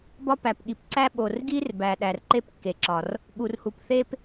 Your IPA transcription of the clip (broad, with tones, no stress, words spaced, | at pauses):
bɒ˥pæ˩pɠi˩p ǀæ˥ɓo˩r ɡi˥rbæ˩ɗæ˩r ǃe˥pkːe˩ǁɒ˩r | ɠu˩r hu˩pθe˥p